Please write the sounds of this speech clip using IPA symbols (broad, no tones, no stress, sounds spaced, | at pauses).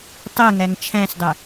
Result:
tˤ ɛ ŋ æ ŋ t͡ʃʰ æ̃ s dˤ ɛ